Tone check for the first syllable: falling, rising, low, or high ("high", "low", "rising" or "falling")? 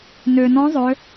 low